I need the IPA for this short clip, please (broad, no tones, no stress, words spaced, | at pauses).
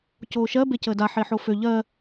coːʃɜ becəːda ħeħofø ʎɜ